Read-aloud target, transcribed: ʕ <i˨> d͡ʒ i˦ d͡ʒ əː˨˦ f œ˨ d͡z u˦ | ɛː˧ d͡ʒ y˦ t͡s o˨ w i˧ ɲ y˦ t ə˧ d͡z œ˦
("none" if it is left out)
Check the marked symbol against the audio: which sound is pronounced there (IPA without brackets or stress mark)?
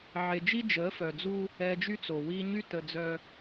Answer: e˨